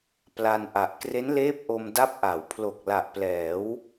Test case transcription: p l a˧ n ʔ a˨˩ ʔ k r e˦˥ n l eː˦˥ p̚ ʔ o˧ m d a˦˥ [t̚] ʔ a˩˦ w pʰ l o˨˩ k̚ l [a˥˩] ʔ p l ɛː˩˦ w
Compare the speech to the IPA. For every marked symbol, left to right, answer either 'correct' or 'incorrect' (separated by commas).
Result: incorrect, incorrect